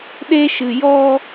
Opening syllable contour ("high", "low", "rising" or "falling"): high